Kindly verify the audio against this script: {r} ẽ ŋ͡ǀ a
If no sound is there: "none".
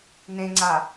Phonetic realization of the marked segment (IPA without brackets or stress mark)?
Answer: n